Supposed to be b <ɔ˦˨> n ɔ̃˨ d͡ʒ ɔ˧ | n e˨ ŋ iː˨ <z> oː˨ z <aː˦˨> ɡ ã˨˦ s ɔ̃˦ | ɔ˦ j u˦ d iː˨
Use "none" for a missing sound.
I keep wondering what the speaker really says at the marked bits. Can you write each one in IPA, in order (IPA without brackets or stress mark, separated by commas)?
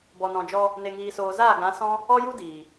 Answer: ɔ˨, s, aː˦˨